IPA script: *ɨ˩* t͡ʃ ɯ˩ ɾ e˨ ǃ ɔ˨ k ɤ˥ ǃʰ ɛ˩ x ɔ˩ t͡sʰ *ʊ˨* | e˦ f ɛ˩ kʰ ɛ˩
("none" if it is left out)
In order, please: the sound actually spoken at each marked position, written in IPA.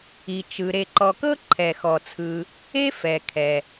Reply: i˩, ɯ˨

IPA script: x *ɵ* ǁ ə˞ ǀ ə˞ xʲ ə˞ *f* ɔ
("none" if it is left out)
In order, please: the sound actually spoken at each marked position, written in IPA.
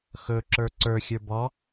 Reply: ɵ, b

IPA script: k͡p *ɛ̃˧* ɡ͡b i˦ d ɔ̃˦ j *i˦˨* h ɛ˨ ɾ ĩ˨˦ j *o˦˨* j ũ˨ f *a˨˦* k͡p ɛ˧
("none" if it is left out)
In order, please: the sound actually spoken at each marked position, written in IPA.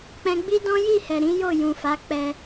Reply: ɛ̃˧, i˦˨, o˦˨, a˨˦

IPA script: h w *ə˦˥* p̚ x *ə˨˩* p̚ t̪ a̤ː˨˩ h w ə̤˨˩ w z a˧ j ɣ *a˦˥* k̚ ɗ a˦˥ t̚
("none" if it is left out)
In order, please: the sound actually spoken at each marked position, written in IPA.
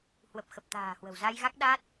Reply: ə˨˩, ə˨˩, a˦˥

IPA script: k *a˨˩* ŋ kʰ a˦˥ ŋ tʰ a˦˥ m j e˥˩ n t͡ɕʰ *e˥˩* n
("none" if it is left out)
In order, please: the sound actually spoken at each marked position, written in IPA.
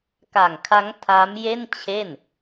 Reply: a˨˩, e˥˩

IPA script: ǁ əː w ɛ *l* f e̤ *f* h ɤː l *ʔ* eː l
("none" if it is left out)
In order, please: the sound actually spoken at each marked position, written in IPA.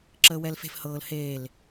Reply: l, f, h

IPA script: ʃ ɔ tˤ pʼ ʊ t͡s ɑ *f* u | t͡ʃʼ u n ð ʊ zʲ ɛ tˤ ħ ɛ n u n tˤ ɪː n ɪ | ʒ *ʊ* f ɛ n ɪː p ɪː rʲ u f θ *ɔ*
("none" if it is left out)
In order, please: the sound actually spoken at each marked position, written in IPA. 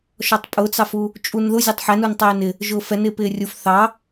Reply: f, ʊː, ɑ

